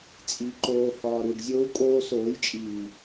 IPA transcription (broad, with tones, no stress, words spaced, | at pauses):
t͡sʼi˨ǃoː˨ hɒː˨ɾu˨ɖzʲo˧u̯ kʼoː˧soː˨˦jt͡ʃʼiː˨